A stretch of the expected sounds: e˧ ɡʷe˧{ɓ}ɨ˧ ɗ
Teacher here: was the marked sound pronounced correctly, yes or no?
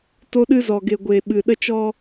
yes